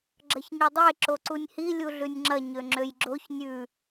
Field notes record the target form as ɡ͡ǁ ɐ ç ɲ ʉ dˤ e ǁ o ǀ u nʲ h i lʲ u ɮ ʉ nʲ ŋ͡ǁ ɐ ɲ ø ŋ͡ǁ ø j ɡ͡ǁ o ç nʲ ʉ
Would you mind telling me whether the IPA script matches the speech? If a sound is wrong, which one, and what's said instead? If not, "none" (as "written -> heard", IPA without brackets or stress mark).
none